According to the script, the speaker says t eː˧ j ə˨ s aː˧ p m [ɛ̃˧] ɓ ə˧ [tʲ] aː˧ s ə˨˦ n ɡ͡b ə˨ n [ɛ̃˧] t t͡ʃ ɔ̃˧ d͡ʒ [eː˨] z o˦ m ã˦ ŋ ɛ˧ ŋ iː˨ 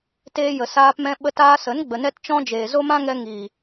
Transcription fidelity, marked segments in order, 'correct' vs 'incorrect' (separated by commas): correct, incorrect, incorrect, correct